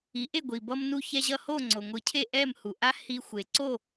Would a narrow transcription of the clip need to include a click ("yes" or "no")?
yes